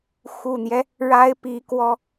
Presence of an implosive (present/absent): absent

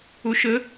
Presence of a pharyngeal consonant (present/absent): absent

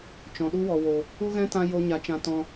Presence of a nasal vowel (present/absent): present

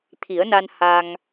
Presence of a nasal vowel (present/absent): absent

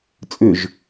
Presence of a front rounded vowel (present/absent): present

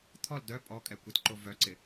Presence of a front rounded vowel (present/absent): present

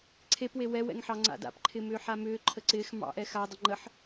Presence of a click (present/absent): present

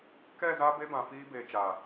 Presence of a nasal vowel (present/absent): present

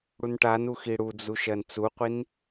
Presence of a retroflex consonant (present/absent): present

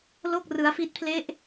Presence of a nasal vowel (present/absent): absent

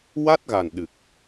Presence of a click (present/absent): absent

